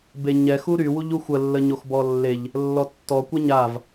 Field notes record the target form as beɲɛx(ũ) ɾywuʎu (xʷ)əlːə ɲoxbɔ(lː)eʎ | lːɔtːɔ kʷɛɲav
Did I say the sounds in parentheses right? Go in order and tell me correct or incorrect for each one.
incorrect: u, correct, correct

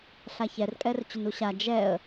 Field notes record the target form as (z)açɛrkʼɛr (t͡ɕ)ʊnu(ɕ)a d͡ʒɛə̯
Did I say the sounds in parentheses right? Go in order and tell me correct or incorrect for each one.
incorrect: ɬ, correct, correct

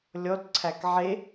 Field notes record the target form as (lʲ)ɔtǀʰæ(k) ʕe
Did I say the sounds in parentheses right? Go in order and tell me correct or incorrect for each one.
correct, correct

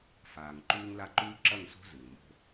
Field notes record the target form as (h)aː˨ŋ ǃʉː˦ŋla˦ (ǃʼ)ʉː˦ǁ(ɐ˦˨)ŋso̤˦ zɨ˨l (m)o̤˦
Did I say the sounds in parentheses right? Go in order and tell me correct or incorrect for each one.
incorrect: f, incorrect: ǃ, correct, correct

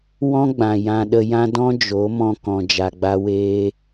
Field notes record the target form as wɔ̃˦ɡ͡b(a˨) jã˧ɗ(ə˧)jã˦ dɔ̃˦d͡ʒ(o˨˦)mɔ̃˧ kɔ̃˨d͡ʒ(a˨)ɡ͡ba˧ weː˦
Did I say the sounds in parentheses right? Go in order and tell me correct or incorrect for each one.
incorrect: ã˨, correct, correct, correct

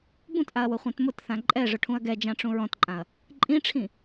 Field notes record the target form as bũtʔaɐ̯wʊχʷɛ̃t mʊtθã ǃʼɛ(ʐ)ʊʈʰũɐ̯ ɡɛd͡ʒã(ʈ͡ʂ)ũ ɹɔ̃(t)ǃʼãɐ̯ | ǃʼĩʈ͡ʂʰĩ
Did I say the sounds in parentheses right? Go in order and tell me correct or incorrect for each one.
correct, correct, correct

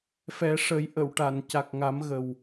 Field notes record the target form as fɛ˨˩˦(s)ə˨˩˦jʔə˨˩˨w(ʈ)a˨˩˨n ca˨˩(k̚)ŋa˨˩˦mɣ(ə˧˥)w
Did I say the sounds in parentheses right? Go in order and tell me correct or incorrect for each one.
incorrect: ʂ, correct, correct, incorrect: ə˨˩

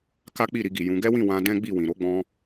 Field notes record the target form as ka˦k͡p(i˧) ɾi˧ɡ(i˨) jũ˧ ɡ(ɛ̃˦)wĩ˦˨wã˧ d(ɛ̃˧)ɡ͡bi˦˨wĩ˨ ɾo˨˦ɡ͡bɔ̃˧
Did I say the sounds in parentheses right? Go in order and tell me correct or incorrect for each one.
incorrect: i˦˨, correct, incorrect: ɛ˦, incorrect: ɛ̃˦

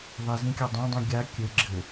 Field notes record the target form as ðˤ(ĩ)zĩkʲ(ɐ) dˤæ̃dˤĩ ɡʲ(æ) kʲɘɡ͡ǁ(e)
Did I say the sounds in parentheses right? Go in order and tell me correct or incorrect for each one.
incorrect: i, incorrect: a, incorrect: a, incorrect: ɘ

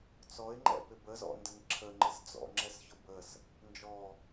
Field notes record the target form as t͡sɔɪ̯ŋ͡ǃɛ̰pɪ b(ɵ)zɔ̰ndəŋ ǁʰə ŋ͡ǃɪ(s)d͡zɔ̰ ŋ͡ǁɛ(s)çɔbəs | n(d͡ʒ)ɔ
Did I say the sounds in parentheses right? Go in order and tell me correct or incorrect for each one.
incorrect: ə, correct, correct, correct

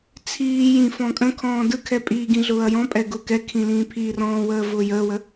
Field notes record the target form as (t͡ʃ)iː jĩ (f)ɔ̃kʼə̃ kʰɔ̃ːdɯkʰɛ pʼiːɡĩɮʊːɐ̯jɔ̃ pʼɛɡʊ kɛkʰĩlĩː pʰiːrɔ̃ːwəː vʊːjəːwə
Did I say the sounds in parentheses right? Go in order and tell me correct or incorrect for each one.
incorrect: t͡sʰ, correct

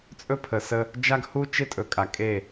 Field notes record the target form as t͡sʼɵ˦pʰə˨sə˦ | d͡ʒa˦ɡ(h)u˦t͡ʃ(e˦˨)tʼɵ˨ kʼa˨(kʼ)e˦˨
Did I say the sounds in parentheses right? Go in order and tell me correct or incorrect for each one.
correct, incorrect: e˦, correct

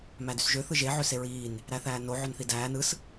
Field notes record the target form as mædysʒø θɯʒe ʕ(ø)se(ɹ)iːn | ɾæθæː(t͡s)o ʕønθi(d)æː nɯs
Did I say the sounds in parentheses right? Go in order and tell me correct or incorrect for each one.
correct, correct, incorrect: n, correct

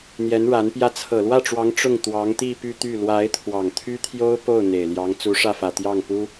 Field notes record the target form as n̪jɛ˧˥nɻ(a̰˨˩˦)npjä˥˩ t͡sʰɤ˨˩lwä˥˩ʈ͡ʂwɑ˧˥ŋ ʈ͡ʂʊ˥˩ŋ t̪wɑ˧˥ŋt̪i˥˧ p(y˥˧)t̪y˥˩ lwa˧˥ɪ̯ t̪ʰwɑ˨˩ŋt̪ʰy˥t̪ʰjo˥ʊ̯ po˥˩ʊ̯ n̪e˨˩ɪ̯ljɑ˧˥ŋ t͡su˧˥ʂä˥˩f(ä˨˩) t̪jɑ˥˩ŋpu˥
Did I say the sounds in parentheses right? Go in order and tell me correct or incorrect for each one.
incorrect: a˧˥, correct, correct

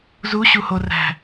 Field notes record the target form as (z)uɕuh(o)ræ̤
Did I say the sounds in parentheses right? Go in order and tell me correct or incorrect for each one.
correct, correct

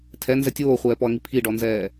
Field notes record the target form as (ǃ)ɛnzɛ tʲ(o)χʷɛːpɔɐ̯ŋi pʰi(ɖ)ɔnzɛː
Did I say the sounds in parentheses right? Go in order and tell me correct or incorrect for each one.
incorrect: tʰ, incorrect: oː, correct

